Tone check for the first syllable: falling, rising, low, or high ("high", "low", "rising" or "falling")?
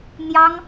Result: high